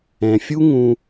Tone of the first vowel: low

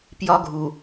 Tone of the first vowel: high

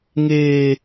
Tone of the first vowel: high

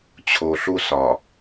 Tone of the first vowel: low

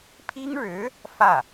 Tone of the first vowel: high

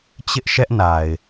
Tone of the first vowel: high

